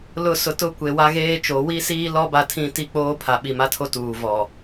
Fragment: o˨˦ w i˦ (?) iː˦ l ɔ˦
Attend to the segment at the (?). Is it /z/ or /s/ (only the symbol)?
s